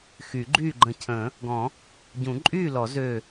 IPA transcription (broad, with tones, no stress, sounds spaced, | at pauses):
x y˨˩˦ ɡ͡ǃ yː˥˨ ɡ͡ǃ ə̃˧˩ cʰ ə̃ː˨˩˦ | ɡ ɔ̃˨˩˦ | ɟ ũ˨˩˦ ǃʼ yː˥˨ l ɔ˨˩˦ z øː˧˩